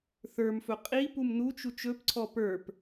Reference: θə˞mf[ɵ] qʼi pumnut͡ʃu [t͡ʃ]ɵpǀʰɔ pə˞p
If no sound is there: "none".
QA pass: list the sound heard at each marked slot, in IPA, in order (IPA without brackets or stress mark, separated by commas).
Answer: ɵ, t͡ʃ